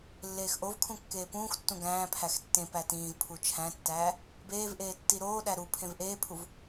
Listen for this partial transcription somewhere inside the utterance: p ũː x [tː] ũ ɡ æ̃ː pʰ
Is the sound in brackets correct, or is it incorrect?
correct